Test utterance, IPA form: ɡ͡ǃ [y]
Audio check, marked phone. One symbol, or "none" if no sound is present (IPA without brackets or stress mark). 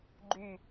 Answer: y